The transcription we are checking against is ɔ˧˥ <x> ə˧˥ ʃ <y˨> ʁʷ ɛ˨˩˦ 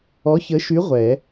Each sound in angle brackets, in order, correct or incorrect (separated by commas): incorrect, incorrect